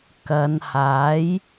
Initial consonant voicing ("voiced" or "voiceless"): voiceless